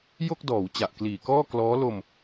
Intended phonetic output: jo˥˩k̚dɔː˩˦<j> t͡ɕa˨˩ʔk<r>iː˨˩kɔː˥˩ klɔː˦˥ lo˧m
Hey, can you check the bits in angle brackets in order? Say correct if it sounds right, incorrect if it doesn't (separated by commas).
incorrect, incorrect